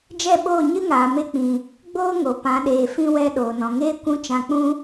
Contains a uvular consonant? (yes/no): no